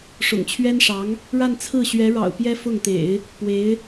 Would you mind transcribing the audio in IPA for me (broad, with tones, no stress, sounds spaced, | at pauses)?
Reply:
ʂ ʊ̰˨˩ ŋ t͡ɕʰ ɥ ɛ˥ n ʂ ɑ˧˥ ŋ | ɻ a˥˧ n t͡sʰ ɹ̩˥˩ ɕ ɥ ɛ˧˥ ɻ ɑ̰˨˩ ʊ̯ p j ɛ˥ f ʊ˥˩ ŋ t̪ ḛ˨˩˦ ɪ̯ | p w e˧˥ ɪ̯